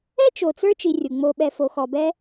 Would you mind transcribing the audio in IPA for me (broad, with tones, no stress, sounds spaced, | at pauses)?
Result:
ɛ˥ t͡ʃ o˨ t͡s ə˞˦ t͡ʃ i˨ rʲ u˩ ŋ͡m o˨ ɓ ɛ˨ f o˨ x ɔ˨ b ɛ˦